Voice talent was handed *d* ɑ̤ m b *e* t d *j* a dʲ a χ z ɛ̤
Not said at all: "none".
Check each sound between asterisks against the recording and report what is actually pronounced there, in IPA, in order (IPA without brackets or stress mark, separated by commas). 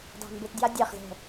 d, ɘ, j